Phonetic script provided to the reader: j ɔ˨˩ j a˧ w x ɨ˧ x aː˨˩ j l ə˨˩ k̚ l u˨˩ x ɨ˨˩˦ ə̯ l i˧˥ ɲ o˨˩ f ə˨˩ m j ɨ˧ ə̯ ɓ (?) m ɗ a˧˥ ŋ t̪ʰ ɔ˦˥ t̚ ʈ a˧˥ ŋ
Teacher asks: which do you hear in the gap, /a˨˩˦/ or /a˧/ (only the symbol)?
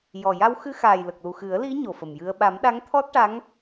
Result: a˨˩˦